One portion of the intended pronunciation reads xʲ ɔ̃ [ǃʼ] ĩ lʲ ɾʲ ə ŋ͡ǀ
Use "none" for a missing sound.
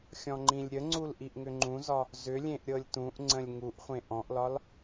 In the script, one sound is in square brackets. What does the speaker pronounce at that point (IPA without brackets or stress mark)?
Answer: ŋ͡ǃ